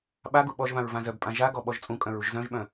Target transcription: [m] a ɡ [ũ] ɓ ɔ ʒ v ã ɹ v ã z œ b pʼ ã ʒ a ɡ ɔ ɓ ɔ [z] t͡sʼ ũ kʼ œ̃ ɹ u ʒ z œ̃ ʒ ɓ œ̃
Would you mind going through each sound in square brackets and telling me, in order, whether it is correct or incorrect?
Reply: incorrect: ɓ, incorrect: u, incorrect: ʒ

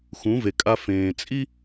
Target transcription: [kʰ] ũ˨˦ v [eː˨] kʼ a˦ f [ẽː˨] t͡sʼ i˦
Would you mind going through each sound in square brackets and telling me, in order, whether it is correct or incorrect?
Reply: incorrect: x, incorrect: e˨, correct

